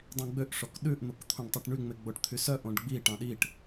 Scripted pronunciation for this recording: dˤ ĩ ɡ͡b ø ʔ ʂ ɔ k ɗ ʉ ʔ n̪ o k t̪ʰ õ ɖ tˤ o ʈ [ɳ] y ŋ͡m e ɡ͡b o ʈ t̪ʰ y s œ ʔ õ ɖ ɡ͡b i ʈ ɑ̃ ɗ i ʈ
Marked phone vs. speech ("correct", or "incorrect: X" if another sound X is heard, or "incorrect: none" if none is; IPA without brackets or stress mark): correct